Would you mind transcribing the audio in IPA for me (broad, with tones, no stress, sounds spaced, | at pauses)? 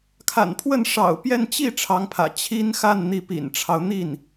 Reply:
kʰ a̰˨˩ n pʰ w ə˥˩ n ʂ ɑ̰˨˩ ʊ̯ p j ɛ˥˧ n t͡ɕ i˥˩ ʈ͡ʂʰ ɑ˧˥ ŋ pʰ ä̰˨˩ t͡ɕʰ i˥ n x a˥˩ n n̪ i˧˥ p ḭ˨˩ n ʈ͡ʂʰ ɑ˦ ʊ̯ n̪ i˥˩ n